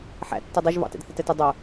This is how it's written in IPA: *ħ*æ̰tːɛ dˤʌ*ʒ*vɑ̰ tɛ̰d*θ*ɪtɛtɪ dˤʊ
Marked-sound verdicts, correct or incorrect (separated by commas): correct, correct, correct